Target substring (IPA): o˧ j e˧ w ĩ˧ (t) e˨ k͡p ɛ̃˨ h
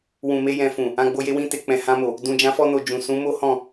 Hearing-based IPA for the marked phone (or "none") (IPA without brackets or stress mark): t